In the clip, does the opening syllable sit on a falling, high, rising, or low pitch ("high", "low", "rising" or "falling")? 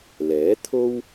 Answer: rising